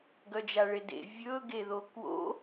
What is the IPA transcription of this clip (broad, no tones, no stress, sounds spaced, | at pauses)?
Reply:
ɡ œ d͡ʒ a ɭ e d ḛ vʲ ɵ ɡ e ð o k w o̰